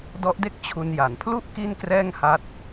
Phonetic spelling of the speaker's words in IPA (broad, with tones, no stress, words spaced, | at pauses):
dɔ˦˥ʔde˥˩k̚ t͡ɕʰu˧nja˩˦n pʰlu˥˩ʔ ki˥˩nkrɛː˥˩ŋha˦˥t̚